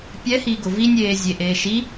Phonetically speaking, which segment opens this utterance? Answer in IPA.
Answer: pʲ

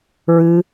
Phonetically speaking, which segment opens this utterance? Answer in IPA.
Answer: ɹ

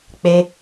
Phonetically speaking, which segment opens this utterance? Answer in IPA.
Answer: k͡p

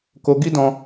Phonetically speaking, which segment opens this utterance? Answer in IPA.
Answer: k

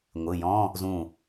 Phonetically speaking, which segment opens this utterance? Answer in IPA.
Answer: ŋʷ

